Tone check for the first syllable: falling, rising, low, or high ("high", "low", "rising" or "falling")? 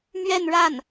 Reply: falling